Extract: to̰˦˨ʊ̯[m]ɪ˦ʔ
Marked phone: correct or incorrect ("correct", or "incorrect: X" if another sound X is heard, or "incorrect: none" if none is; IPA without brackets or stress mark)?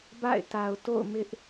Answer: correct